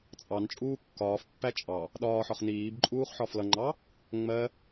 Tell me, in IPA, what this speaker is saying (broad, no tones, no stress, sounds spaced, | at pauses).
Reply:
t͡sʼ ɑ n t͡ʃʼ uː kː ɒː f pː æ t͡ʃʼ ɑ | ɗ ɒː ħ ɒ χ n iː b ǃʼ uː χ ħ ɒ f l ʌ ŋ͡ǃ ɑ | ŋ͡m ɜ